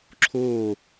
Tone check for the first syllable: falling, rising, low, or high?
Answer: falling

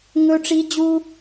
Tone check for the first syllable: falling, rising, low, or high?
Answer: high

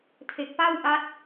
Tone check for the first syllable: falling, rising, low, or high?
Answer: low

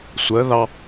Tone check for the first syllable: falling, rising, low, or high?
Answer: rising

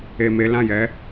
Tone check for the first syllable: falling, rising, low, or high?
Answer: low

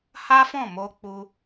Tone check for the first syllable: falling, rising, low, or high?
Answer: high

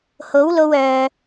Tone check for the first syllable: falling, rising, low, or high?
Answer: rising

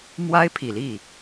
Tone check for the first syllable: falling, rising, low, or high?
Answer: high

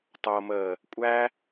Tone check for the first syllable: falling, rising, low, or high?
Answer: low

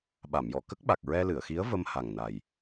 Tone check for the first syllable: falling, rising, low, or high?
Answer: low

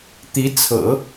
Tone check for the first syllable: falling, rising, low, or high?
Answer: rising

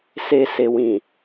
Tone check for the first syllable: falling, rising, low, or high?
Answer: low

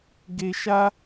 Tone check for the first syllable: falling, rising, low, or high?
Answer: high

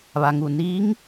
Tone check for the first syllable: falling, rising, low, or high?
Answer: low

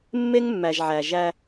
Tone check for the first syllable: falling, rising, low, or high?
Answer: high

